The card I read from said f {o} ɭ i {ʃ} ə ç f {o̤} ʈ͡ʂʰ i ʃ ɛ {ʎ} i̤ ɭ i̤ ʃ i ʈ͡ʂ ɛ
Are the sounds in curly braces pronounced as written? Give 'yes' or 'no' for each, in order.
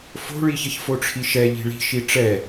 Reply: no, no, no, yes

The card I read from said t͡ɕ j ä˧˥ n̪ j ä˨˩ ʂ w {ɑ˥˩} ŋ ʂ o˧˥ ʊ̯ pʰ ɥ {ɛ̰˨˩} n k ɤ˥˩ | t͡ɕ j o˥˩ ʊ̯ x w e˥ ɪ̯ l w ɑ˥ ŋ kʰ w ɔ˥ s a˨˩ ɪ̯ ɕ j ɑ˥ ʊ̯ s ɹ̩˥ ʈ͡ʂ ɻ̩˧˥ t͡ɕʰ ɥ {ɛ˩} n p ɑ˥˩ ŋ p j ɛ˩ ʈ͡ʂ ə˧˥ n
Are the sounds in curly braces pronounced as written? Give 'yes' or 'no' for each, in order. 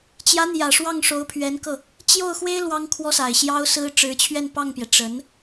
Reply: yes, no, no

